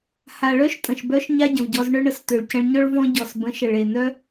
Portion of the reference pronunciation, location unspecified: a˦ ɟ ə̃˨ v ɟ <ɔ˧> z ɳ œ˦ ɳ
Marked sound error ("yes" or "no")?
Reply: no